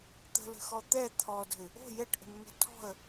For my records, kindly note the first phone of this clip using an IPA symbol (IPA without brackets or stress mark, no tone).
t̪